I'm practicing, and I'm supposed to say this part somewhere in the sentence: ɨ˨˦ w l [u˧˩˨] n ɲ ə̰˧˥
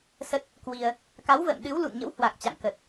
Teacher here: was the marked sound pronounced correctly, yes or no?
no